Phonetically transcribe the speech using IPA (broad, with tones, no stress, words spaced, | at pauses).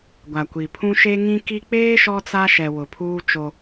ɡʷa˨kʷi˨pʰũ˦ ʃe˦ŋĩ˦ki˦ k͡peː˦ ʃɔ˦t͡sa˦ʃɛ˨ wʊ˨pʰuː˦ t͡ʃo˦